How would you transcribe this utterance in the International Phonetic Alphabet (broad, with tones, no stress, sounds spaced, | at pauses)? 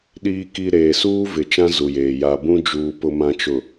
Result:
ɗ iː˨ k i˨ ɾ eː˨ s uː˦ v ɪ˨ t͡ʃ ã˦ z u˨ j eː˨ j a˨ b ũ˦ d͡ʒ uː˨ p ʊ˨ m ã˨ t͡ʃ ʊ˨